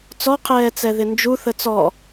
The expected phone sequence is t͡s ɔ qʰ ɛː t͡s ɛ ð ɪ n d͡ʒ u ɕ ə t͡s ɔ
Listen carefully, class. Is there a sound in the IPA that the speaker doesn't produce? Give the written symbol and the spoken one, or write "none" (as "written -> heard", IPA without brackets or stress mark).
ɕ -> θ